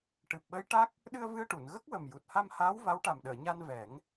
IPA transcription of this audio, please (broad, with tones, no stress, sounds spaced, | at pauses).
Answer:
ʈ ɨ˨˩ p̚ ɓ ə˧˥ j ʈ a˦˥ k̚ | ɗ ɨ˧ ə̯ v ɨ˧ ə̯ ʈ u˨˩˨ n ɣ ə˦˥ k̚ w ə˨˩ m j u˨˩ t̚ h a˧ m h aː˧˥ w v a˧˥ w ʈ a˨˩ m ɗ əː˨˩˨ ɲ a˧ n v ɛ˨˩˦ ŋ